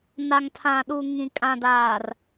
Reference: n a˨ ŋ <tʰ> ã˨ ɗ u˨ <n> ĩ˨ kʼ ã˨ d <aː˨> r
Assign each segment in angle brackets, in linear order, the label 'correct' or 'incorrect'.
correct, incorrect: ŋ, correct

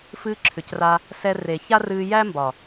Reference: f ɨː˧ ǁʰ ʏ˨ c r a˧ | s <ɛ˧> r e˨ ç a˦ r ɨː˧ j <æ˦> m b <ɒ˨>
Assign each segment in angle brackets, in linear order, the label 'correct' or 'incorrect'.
correct, correct, correct

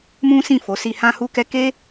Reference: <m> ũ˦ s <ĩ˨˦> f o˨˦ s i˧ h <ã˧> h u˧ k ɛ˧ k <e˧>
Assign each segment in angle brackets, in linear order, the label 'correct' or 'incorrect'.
correct, incorrect: ĩ˦˨, correct, incorrect: e˦

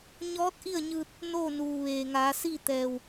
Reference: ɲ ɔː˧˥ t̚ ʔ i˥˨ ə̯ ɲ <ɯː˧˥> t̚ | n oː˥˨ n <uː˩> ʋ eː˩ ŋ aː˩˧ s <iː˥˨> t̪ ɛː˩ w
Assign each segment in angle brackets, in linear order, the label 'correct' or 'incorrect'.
incorrect: ɯː˧, correct, correct

